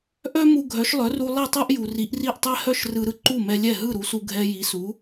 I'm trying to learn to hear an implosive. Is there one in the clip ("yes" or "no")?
no